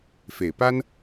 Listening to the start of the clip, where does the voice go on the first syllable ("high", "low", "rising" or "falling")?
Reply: low